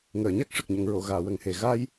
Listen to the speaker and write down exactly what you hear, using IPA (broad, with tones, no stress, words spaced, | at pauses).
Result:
ŋəː˨˩˨ɲa˦˥k̚ ʂə˨˩k̚ɲə˨˩˨ŋɹo˨˩˨ɣaː˨˩˨ wə˨˩ŋhe˨˩ ɣa˧j